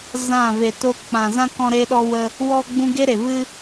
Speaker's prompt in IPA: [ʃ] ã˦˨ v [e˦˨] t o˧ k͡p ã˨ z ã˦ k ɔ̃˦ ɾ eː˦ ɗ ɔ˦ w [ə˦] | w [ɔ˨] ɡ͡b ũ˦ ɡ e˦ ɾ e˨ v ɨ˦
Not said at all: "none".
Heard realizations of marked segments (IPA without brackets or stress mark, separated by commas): z, e˨, ə˦, ɔ˦